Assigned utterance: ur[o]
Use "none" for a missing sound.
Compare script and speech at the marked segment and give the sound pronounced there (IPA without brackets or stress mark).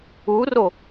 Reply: o